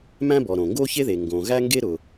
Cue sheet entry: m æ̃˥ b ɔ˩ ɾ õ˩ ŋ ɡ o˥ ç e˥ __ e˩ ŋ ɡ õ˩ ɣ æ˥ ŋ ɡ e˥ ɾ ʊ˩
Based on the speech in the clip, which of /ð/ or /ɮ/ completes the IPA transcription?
ð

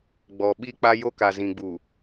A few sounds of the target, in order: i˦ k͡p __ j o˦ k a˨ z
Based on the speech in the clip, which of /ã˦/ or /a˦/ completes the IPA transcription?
a˦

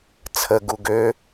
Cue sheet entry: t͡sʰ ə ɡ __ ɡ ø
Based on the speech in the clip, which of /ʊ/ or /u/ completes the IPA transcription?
u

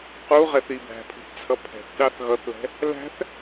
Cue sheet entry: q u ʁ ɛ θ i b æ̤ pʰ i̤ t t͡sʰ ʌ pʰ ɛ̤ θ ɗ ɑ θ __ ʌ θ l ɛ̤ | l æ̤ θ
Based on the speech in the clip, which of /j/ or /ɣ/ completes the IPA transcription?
ɣ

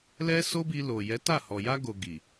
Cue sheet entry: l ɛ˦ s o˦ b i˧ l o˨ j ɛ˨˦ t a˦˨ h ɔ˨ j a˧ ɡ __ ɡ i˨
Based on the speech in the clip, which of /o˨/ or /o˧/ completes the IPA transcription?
o˨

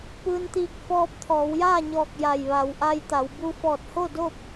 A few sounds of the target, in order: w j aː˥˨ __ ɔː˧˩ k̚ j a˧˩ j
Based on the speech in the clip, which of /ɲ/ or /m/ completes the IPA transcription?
ɲ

